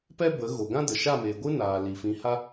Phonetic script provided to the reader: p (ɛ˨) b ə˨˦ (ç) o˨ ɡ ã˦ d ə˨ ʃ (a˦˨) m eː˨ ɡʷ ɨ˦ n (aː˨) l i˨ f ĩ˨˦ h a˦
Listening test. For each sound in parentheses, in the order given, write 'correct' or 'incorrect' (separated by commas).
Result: incorrect, incorrect, correct, correct